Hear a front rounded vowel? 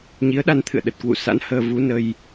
no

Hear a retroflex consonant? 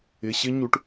yes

